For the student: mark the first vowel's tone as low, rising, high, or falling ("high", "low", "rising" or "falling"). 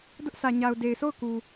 high